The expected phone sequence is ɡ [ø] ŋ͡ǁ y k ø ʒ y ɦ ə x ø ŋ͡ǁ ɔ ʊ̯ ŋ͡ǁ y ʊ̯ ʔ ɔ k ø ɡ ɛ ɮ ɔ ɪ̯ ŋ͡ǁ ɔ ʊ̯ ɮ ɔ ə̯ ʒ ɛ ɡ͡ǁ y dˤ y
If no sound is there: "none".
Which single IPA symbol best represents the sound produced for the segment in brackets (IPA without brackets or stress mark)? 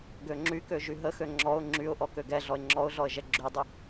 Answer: ø